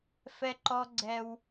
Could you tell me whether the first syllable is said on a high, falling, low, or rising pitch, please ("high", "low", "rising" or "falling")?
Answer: high